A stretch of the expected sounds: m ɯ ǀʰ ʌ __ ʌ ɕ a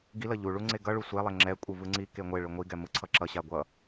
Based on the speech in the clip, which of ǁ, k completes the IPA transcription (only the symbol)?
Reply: ǁ